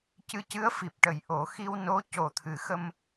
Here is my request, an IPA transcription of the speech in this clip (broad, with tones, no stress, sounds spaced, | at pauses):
c ɨ˧˥ c ɨ˧˥ ə̯ f i˨˩ p̚ ʈ ə˨˩˦ j ʔ o˨˩˦ x i˧ w n o˧˥ c o˨˩ t̪ʰ ɨ˨˩˦ x ə˧ m